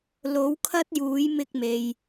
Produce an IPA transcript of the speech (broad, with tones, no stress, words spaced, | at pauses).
lo˨˥wkʰɐ˥t̚juː˨˥j mɪ˧k̚me˨j